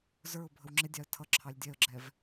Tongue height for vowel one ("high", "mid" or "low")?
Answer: mid